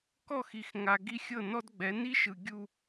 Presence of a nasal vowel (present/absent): absent